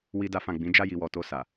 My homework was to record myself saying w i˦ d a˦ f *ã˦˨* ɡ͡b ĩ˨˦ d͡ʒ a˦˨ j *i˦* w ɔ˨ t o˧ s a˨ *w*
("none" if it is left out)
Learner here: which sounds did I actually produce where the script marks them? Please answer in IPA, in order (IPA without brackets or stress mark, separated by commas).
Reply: ã˦˨, i˨, none